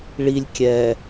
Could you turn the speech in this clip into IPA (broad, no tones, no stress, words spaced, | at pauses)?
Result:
ɭilʲ kʲɛ